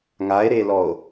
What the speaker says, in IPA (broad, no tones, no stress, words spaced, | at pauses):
ŋae̯ɾelɔo̯